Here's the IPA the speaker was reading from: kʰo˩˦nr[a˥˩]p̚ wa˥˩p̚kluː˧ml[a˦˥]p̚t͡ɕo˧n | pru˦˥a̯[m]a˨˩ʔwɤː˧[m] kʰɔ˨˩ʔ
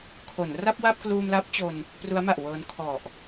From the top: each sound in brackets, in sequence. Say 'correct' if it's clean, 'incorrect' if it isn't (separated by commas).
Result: correct, correct, correct, incorrect